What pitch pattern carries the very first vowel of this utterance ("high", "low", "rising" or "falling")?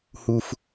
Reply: low